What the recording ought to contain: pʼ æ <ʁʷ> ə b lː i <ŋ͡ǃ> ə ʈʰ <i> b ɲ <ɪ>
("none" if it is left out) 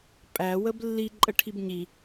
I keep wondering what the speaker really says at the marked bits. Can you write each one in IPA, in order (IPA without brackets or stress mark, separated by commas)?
w, ǃʼ, i, i